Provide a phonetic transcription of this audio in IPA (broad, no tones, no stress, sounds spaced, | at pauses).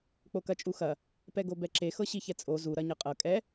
k͡p o k ɐ t͡ʃʼ u x ɐ | p ɛ ɡ o b ɛ ǁ e x ɤ ɕ i ç ɛ t͡sʼ o z u ɾ ɐ ɲ ɤ qʼ ɤ kʼ ɛ